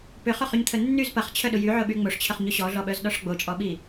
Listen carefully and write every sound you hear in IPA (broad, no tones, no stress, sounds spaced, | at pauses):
p ʏ χ ʊ χ y ɲ t̪ʰ ə nː y z p ɐ χ t͡ɕʰ œ ɗ ʊ j y ʕ ʊ ɓ y ŋ͡m o ʂ t͡ɕʰ ə χ ɲ ʊ ɕ ɔ ɮ ɔ ɓ œ z ɗ ɔ ʂ ɡ͡b o t͡ʃʼ ɔ ɓ i